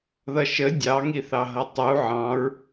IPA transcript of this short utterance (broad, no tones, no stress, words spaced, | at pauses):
ðʌʃə dʲɑŋiθɑɦʌ tˤu ʕɑ̃ɹ